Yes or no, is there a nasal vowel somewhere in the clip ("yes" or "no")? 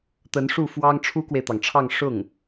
no